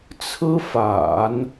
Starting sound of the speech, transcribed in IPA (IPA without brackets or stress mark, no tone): t͡sʰ